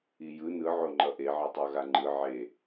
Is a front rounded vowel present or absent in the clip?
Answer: absent